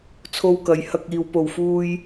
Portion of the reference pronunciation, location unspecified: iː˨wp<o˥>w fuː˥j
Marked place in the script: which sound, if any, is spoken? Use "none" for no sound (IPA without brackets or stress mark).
o˨